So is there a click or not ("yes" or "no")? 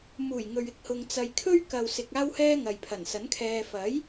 no